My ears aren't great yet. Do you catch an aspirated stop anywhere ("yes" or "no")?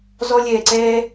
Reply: no